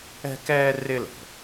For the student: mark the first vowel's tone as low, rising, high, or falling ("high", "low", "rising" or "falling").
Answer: high